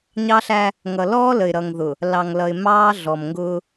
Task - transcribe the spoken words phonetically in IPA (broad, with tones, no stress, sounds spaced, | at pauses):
ɲ ɑ˦ ɬ æ˦ | ŋ ʌ˨ l ɔː˦ l ə˨ ɪ̯ ɾ ʌ˨ ŋ ð ʊ˨ | l ɑ˨ ŋ l ʌ˨ ɪ̯ m ɑː˦ ɮ ɔ˨ m ŋ ɡ ʊː˦